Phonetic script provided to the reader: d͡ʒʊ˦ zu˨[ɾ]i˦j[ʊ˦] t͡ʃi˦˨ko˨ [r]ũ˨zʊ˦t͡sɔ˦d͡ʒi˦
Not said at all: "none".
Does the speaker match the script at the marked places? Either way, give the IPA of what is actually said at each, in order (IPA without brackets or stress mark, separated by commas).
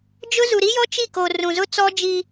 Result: ɾ, ɔ˦, r